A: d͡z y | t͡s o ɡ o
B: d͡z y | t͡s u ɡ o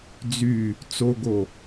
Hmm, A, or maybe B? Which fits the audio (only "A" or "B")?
A